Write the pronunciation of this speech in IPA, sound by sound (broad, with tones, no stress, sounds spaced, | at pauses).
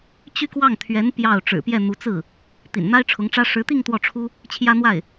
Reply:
t͡ɕ y˥˧ k w ɑ˥˩ ŋ t̪ʰ ɥ ɛ˧˥ n p j ɑ˥˩ ʊ̯ ʈ͡ʂ ɻ̩˨˩ p j ɛ˥˩ n̪ u˧˥ t͡s ɹ̩˥˩ | t̪ ḭ˨˩ n n̪ a˥ ɪ̯ ʈ͡ʂʰ ʊ˧˥ ŋ ʈ͡ʂ ä˥ ʂ ɻ̩˧˥ t̪ i˥˧ ŋ t̪ w ɔ˥˩ ʈ͡ʂʰ u˥ | t͡ɕʰ j ä˥ n̪ w a˥˩ ɪ̯